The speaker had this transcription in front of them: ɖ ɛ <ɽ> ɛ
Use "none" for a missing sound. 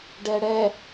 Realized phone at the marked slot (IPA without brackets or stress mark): ɽ